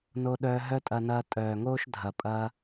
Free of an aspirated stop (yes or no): yes